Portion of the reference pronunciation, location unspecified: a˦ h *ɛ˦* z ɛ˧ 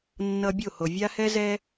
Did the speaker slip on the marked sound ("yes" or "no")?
no